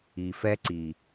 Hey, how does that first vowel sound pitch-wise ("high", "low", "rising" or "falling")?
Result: low